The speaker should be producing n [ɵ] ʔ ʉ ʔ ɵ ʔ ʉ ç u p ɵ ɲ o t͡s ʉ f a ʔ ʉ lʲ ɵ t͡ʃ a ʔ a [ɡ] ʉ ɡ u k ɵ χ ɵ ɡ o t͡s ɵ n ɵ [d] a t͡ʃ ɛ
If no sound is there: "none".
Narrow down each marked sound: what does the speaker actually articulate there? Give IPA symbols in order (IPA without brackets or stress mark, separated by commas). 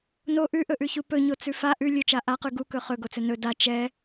o, q, d